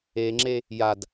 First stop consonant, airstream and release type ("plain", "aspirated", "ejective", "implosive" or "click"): click